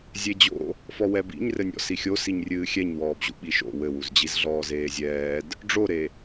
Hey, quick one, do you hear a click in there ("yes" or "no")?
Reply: no